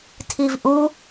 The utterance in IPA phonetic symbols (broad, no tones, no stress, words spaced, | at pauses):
tʰivʔu